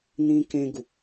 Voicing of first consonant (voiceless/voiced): voiced